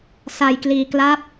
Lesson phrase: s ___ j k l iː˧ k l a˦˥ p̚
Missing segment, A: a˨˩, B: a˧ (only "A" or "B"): B